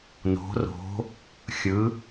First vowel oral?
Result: yes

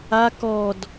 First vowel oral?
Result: yes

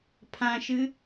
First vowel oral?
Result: no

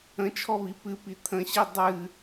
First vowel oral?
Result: no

